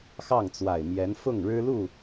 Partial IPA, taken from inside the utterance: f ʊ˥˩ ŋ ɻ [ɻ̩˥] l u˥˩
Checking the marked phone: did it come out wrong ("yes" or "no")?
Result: no